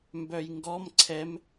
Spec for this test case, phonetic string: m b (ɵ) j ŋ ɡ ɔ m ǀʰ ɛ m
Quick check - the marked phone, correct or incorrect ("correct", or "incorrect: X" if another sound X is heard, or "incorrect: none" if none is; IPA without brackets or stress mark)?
incorrect: œ